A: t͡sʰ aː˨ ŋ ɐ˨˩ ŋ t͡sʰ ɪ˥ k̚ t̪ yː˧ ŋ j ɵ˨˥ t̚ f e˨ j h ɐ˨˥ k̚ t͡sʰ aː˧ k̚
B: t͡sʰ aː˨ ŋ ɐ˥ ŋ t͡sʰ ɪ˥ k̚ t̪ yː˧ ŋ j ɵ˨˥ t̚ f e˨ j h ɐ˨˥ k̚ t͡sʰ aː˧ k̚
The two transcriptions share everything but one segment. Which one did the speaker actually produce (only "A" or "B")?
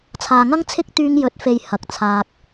B